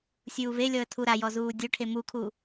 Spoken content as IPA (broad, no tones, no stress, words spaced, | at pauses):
sʲuːvelʲɔə̯ tʰuɾajɔ zuːdʲoʈʰe mukʰu